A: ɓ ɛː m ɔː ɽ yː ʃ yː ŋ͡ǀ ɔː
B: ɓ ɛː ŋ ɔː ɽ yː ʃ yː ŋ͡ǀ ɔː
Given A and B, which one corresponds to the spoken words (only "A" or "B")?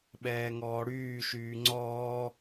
B